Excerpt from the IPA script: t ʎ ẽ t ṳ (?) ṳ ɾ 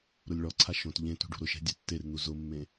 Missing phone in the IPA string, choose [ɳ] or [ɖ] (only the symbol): ɖ